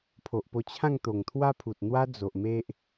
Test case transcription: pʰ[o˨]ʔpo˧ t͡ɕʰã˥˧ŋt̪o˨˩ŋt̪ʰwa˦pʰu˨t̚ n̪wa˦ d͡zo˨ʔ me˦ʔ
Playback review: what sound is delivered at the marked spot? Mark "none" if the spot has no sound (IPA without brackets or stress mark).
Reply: o˨